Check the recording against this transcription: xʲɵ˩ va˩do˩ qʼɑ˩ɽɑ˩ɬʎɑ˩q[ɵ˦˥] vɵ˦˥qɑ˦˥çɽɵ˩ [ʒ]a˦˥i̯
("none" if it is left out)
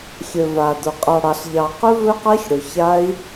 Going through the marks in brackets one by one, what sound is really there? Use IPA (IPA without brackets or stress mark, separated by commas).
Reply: ɵ˦˥, ç